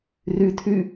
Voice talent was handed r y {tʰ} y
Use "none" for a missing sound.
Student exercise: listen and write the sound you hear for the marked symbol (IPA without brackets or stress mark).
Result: tʰ